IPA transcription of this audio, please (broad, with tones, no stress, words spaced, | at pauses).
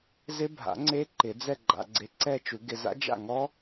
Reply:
zɪ˦˥bʱa̰˨˩˦ ŋ͡ǀe˦˥ ǃɪ˨˩˦d͡zɛ˥˧ ɡ͡ǃa̰˨ɡ͡ǀe˨˥ǀɛ˥˧t͡ʃu˨˩˦ ɡɪ˨za̰˦˥ d͡ʒa̰˥˩ŋɔ˦˥